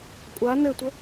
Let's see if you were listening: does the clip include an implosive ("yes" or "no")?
no